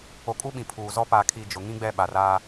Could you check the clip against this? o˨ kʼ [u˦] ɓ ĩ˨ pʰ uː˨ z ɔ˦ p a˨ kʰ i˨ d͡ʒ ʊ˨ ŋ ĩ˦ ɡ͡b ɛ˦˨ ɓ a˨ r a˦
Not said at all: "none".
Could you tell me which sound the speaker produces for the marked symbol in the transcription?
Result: u˦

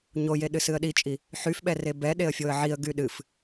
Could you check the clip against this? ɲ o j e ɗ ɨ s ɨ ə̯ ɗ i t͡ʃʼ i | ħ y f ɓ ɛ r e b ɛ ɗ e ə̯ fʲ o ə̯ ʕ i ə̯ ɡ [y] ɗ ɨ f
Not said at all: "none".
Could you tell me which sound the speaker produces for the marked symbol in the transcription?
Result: y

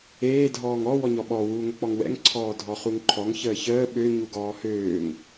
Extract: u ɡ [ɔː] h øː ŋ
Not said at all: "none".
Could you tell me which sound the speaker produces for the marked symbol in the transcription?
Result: ɔː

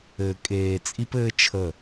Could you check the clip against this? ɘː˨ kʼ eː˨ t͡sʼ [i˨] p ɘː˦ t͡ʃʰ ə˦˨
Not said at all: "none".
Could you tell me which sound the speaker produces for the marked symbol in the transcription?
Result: i˦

